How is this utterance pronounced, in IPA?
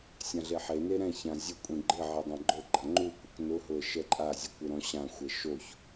sʲ ã ɮ e ħ e n e ɾ ɛ̃ ç ã zʲ ʊ kʷʼ ĩ ɡ͡ǃ ɪ ʕ e dˤ ã ɡ͡ǃ o ɡ͡ǃ a ŋ͡ǃ u kʷ ɪ k n ʊ ɦ ʊ ə̯ ʃ ɛ ǃʼ a zʲ ʊ kʷ ɪ ɾ ɔ̃ ɕ ã xʷ ɛ ʃ o ç

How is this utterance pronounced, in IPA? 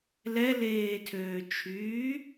l ɛ l eː tʰ øː t͡ʃʰ yː

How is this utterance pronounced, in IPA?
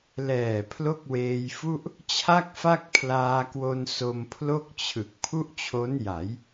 l ɛː˨˩ pʰ l o˥˩ k̚ w eː˧ j f u˥˩ ʔ | t͡ɕʰ a˥˩ k̚ f a˥˩ k̚ pʰ l aː˧ k w o˧ n s o˧ m pʰ l o˥˩ k̚ t͡ɕʰ ɯ˨˩ k̚ pʰ u˥˩ ʔ t͡ɕʰ o˦˥ n j a˩˦ j

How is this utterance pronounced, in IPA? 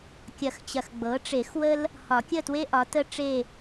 kʲ ɐ˨˩˦ x t͡ɕ ɐ˨ x ɡ͡b ɤ˩˥ ʈ͡ʂ e˨˩˦ x w ə˥ l | h ɒ˨˩˦ kʲ ə˥˨ t w e˥ ʔ ɒ˩˥ t ə˥ ʈ͡ʂ e˥˨

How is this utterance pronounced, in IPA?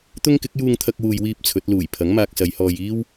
t̪ ʊ˥ ŋ k ɪ˨˥ k̚ j uː˧ ŋ t̪ʰ ɐ˧ k̚ w uː˨ j w iː˥ p̚ t͡sʰ ɵ˨˥ t̚ l uː˨˩ j pʰ ɐ˨˥ ŋ m aː˧ k̚ s ɐ˨˧ j h ɔː˧ j iː˥ w

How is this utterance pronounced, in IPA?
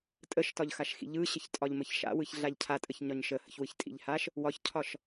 tʼ ə ʃ t ɒ ʎ x a ʃ x ḭ ʎ ɯ ɕ ə ç tʼ ɒ ʎ m ə ç ʃ a̰ w ɯ ç ɮ a ʎ cʰ a tʼ ə ç ɲ ɒ ɲ ʃ ə h ə̰ ç w ɯ ç tʼ ḭ ʎ h a ʃ | w ɒ ç cʰ ɒ ʃ

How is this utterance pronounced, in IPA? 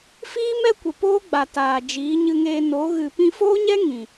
f iː˦ m ɛ˦ kʷ ə˨ p oː˦ ɡ͡b a˨ t aː˨ d͡ʒ iː˨˦ ɲ ɨ˧ ŋ eː˧ n o˨˦ ɣ ɨ˨ p ĩ˧ f oː˦ ɲ ɛ˦ ŋ ĩ˨

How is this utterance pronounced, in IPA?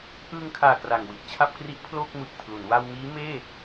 ʔ ɯː˧ ŋ kʰ aː˨˩ k r a˨˩ ŋ w i˨˩ t̚ t͡ɕʰ a˥˩ p̚ k r i˦˥ ʔ pʰ l oː˥˩ k̚ m ɯː˨˩ k̚ pʰ l u˩˦ n w a˧ w m iː˦˥ m eː˥˩

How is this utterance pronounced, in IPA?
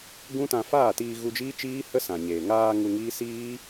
ɡ ũ˦ t ã˧ f aː˦˨ t iː˧ ɣ u˧ d͡ʒ iː˦ t͡ʃ iː˦ h ə˦ s ã˨ ɲ eː˨ ŋ aː˧ ŋ u˧ ŋ iː˦ s iː˦

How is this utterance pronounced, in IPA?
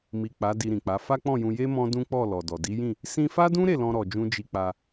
m i˨ k͡p a˨˦ d i˧ ɾ ĩ˨ k͡p a˨˦ f a˦ k͡p ɔ̃˦˨ j ũ˧ j e˦ m ɔ̃˦ d ũ˦ k͡p ɔ˦˨ l ɔ˨ d ɔ˨ d i˨˦ j ĩ˦˨ | s ĩ˧ f a˦ d ũ˦ ɾ e˦˨ l ɔ̃˧ ɾ ɔ˨ d͡ʒ ũ˧ d͡ʒ i˧ k͡p a˧

